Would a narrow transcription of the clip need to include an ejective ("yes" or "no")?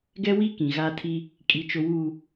yes